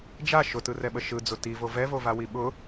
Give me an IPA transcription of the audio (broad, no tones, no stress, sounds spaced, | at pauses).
d͡ʒ a ʃ ʊ t ɯ r ɛ ɓ ə ʃ ɯ d͡z ʊ t i v o v ɛ v o v a w i ɓ ʊ